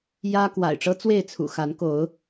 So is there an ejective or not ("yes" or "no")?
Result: no